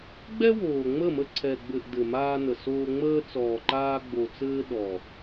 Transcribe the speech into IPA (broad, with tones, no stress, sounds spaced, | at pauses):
ɡ͡b ɛ˦ w oː˨ ŋ͡m ə˦˨ m ə˧ ǀʰ ɛ˨ ɡ͡b ɘ˨ ʔ d ɘ˨ m aː˧ n ə˨ s oː˧ ŋ͡m əː˧ t͡s ɔː˨ ǃ aː˧ ɡ͡b o˨ t͡s ɘː˧ ɗ ɔ˨